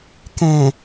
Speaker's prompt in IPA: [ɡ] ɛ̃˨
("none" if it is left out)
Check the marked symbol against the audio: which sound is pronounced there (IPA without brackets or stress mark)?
k